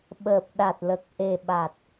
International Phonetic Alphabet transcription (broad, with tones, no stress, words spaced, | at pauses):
ɓəː˨˩p̚ɗa˨˩t̚lə˨˩k̚ ʔe˨˩ɓa˨˩t̚